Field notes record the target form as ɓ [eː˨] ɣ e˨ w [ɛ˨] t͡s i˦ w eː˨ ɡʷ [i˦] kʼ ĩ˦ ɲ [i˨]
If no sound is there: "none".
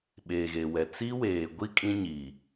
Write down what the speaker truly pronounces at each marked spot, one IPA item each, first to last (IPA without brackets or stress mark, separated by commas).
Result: eː˨, ɛ˨, i˦, i˨